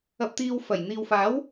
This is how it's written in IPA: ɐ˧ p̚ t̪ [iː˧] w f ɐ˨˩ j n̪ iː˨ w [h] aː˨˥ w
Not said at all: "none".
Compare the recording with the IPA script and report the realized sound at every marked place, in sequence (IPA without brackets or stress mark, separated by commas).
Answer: iː˧, f